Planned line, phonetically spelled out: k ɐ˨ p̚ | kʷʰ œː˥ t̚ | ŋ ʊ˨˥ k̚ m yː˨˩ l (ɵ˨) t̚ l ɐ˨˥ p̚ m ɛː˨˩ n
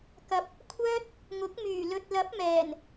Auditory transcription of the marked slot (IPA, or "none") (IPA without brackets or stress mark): ɵ˨